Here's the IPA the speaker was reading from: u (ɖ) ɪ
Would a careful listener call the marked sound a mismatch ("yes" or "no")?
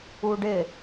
no